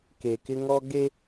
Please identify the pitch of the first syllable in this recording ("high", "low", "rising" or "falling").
low